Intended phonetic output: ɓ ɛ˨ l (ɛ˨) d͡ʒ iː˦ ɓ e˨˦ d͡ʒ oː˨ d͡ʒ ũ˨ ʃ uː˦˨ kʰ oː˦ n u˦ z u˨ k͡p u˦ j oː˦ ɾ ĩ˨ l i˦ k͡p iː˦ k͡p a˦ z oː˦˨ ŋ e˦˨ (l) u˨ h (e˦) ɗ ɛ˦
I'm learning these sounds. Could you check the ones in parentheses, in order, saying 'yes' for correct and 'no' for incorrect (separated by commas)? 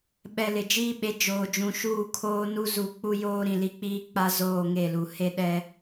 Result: no, yes, yes